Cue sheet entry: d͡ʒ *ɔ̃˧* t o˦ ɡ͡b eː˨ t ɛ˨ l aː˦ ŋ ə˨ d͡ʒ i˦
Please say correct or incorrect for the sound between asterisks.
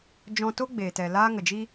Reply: correct